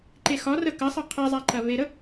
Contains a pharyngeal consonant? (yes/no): no